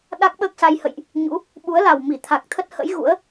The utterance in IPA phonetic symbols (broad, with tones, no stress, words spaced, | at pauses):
ɗa˦˥k̚ɓəː˦˥k̚sa˧j hə̰˧˨jʔ | ɲṵ˧˥ | ɓu˨˦ə̯la˨˩w mi˧˩t̪ʰa˨˩k̚t̪ʰə˦˥t̚hə̰˧˥j ɣṵ˧˥ə̯